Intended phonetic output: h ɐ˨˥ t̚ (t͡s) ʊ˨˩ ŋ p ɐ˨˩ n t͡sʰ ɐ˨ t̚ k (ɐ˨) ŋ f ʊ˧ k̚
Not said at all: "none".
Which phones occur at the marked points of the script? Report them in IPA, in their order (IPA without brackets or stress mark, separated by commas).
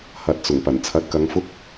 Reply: t͡s, ɐ˨˧